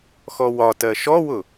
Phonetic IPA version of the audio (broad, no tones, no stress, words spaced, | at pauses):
xɔwɒtɜ ʃɔwʊ